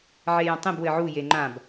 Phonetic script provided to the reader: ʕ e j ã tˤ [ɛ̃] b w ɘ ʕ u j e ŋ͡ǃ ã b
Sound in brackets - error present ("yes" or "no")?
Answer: yes